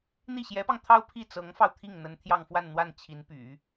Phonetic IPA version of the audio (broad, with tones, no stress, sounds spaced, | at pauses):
n̪ i˥˩ ɕ j ɛ˧˥ p ɑ˧ ŋ t̪ʰ ɑ˥ ʊ̯ pʰ i˥˩ t͡s ɤ˧˥ ŋ f ɑ˧ ʊ̯ t̪ʰ i˥˩ ŋ n̪ ə˧˥ n t̪ʰ j ɑ˥˧ ŋ f w a˥˧ n n̪ w a˥˩ n t͡ɕʰ i˧˥ n p y̰˨˩˦